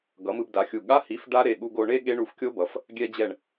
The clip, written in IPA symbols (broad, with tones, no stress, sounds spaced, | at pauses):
ɡ ʌ˩˥ m ɯ˧ b d a˩˥ xʲ u˧˩ ɠ a˧˥˧ h i˩˥ f ɖ a˦˥ ɾ e˩˧˩ ɠ u˧ ɡ o˧ ɳ e˦˥ ɠ e˦˥ ɳ u˧ f kʲ o˦˥ b ʌ˩˥ f | ɡʲ ɛ˧ d͡ʑ ɛ˧˩ ɳ